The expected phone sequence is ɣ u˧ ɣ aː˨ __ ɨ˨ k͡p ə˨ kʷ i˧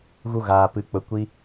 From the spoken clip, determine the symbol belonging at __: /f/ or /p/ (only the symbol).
p